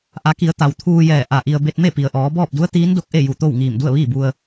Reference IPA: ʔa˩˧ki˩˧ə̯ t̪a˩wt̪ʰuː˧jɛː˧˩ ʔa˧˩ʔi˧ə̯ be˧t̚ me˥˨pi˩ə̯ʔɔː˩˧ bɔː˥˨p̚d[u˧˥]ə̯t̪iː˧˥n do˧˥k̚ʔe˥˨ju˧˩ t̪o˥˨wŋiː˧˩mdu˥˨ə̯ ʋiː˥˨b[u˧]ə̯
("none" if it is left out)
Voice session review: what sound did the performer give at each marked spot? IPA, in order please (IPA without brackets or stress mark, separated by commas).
u˧˥, u˧